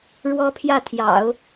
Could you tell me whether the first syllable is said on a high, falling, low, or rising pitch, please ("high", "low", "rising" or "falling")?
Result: high